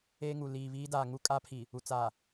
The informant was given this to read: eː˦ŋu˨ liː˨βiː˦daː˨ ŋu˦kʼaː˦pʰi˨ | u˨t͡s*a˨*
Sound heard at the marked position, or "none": a˨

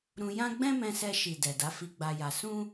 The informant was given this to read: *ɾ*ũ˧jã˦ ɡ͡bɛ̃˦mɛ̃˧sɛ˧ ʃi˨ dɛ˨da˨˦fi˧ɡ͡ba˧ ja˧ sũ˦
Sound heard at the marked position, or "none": ɾ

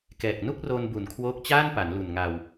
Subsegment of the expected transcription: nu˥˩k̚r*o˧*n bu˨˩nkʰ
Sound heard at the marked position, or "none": o˧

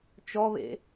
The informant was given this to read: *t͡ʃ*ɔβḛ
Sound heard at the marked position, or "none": t͡ʃ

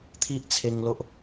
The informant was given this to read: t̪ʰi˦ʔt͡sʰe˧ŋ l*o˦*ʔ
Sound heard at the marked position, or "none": o˦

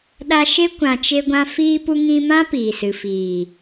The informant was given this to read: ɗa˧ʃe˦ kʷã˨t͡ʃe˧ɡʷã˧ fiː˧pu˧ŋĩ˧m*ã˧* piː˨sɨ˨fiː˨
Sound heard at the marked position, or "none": ã˦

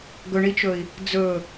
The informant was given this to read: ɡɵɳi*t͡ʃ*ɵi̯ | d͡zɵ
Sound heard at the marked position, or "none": t͡ʃ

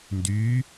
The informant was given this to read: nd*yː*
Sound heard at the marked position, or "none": yː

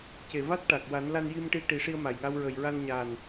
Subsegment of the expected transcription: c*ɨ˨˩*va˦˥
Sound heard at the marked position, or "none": e˨˩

